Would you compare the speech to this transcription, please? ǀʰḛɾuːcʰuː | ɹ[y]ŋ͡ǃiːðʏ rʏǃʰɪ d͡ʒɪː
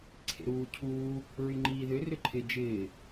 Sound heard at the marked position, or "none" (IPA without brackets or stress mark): y